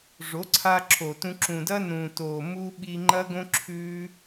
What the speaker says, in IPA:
ʐo˨˦ǀʰaː˧ǁʰoː˨tũ˧ ǁũ˨dɐ˦ nũː˨toː˨ mu˧ ɓi˧ŋ͡ǃɐ˦ɡõ˦ǁʰʉː˦

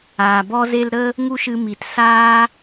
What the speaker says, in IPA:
aː˨bɔ˦ze˦l ɾə˦ | ŋu˦ʃɨ˧mi˨tsaː˦

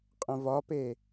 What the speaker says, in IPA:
qʼə̃vɒpe

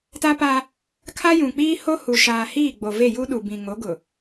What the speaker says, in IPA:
ta˦pa˦ | kʰa˦jũ˨k͡piː˦ho˦ hu˨ʃaː˨ hiː˦˨ɡ͡bo˨ve˦˨ ju˦ɗu˨bĩ˨ ŋo˨˦ ɡʊ˨

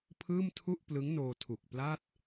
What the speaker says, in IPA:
pʰɯː˥˩m tʰu˥˩ʔplɯ˦˥ŋnoː˧ tʰu˨˩k̚pla˥˩t̚

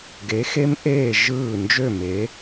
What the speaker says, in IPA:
ɡe˨˦xe˦mʔeː˦˨ ʒɯː˦˨ nd͡ʒø˦˨me˨˦

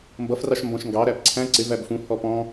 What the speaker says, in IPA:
mbʌfrɑʃ mbɔ̃ʃŋɡɑɾæp ǀʰæ̃ ǀɪv æbfũhɔ pɔ̃

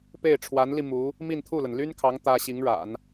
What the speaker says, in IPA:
pe˥˩ɪ̯ʈ͡ʂʰwa˧˥nli˧ mu˧˥ | mi˥˧nt̪ʰu˥˩lə˩n ly˥nkʰɑ˧˥ŋ t̪ä˥ ɕi˧˥ŋɻa̰˨˩˦n

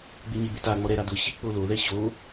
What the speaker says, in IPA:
ɡ͡bɪɲɪbe taŋ͡mɔ ɾɛɾa dʊɕi k͡poloðɛ ɕo

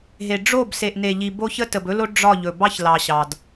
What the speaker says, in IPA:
ɦe˨ ɖ͡ʐo˦˨b se˨ʔne˨ʎi˨ bo˦ çə˦tə˨bɵ˦lo˦ ɖ͡ʐɒ˦˨ʎɵ˨ bɑ˦çlɑ˨ɕɑ˨d

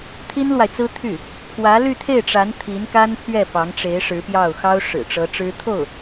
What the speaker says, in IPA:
t̪ʰi˥nlwa˨ɪ̯t͡sɹ̩˥ t̪ʰy˥˩ | pʰwä˧˥ly˥˧t̪ʰe˥˩ɪ̯ʈ͡ʂa˧˥n t̪ʰi˧˥nka˥npʰɥɛ˥˩ pɑ˧˥ŋʈ͡ʂe˧˥ɪ̯ ʂɻ̩˧˥pjɑ˥˩ʊ̯ xɑ˥ʊ̯ʂɻ̩˨˩ʈ͡ʂɤ˧˥ ʈ͡ʂɻ̩˥ t̪ʰo˥˩ʊ̯

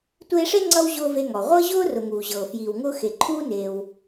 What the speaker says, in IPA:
tʷeː˦ʂe˥ŋ͡ǀʌ˦w ʑʊː˥ve˦ŋɔ˩ ʁʷɤ˥ʑʊː˥ rʊ˨ŋuː˩ʑɤː˩ fjiː˩wŋʊː˦ xe˨ ǃʰuː˥ neː˨w

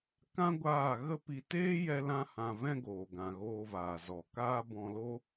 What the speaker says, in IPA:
kã˦ɡʷaː˦˨ ɣə˦pi˧ teː˦ jɛ˦lã˦hã˧ vɛ̃˦ɡoː˨ɡã˨ ɣoː˧vaː˨ zɔ˨ kaː˦bɔ̃˧lo˦

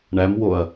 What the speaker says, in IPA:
ɳæmwoɐ̯

